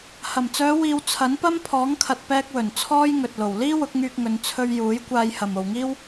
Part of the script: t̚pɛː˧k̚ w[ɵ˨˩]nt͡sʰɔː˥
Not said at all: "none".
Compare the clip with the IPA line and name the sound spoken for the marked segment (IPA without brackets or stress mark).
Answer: ɵ˨˩